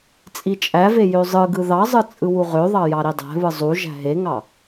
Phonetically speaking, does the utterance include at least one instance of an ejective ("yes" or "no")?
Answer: yes